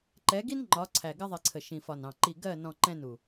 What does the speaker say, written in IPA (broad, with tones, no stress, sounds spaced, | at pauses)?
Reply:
ǃ ɛ˨˦ ɡ i˦ n ŋ͡ǃ ɒ˨˦ ǀʰ æ˨ ɡ ɪ˦ ðˤ i˨ ǀʰ ə˨ ʃ ĩ˨ f ɒ˨ n ɑ̃˨ ǃ i˨ ɡ ɜ˦˨ n ɔ̃˨ ǃ ɛ̃˦ n u˨